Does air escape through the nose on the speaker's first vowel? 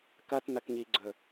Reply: no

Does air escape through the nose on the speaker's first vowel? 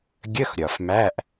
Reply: no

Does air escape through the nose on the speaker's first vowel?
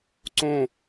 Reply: yes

